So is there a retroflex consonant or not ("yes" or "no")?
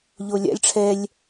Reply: yes